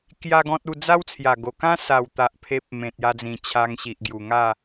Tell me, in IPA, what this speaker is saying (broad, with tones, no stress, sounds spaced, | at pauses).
k j a˦ ɡ ɔ̃˦ t̚ u˥˧ d͡z a˦ w t͡sʰ j a˨˩ ɡ o˨˩ k ã˦ s a˨˩ w t̪ a˨ ʔ pʰ e˦ p̚ m ẽ˨ t̚ j a˧ d͡z ĩ˨˩ t͡ɕʰ a˧ ŋ ɕ i˨ ʔ ɡ j u˨˩ ŋ a˥˧